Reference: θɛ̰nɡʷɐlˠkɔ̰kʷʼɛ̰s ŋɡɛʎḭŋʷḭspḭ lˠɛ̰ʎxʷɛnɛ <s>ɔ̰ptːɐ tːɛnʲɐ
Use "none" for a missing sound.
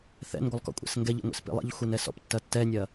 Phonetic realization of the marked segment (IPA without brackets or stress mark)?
s